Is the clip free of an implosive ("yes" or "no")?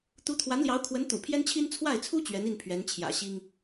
yes